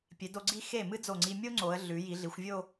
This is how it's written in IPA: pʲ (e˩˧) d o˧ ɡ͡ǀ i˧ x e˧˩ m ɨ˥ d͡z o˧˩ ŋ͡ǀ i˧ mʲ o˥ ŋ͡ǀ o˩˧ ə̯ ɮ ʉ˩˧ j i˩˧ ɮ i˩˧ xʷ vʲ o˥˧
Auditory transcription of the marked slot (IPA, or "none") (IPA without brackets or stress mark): e˩˧